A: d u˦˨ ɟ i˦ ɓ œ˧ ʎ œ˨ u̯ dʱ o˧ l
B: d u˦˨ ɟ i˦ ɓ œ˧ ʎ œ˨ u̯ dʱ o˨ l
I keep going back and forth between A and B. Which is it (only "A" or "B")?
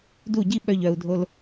A